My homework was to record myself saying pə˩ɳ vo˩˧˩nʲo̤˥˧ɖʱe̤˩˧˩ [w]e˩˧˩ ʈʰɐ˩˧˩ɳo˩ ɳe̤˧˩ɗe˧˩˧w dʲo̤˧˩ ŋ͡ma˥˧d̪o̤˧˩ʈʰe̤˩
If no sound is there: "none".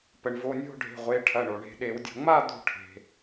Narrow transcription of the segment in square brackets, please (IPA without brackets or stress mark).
ʁʷ